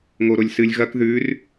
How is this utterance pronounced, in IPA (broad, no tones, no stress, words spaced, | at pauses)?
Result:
ŋoɾolʲsɨlʲ ɣɐk ðʉr